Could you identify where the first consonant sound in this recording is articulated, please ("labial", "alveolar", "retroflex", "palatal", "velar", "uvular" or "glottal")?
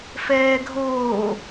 labial